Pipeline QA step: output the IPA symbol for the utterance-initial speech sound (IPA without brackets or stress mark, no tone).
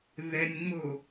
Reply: ð